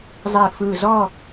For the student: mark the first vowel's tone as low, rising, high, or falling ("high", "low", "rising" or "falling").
low